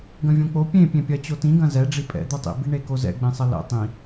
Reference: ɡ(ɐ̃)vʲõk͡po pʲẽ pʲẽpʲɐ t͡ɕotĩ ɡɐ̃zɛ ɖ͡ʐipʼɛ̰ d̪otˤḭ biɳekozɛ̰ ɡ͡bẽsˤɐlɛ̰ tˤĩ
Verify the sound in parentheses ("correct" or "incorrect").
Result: correct